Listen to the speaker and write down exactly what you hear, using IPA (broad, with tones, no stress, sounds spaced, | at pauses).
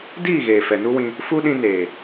d iː˦˨ ɣ eː˨ f ɛ˨ n u˦ w ĩ˧ | f u˦ ɗ ĩ˧ n eː˨